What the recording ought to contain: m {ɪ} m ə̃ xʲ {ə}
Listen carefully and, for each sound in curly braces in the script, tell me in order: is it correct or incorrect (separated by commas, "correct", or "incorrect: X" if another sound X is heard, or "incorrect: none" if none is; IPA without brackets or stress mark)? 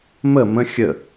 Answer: incorrect: ə, correct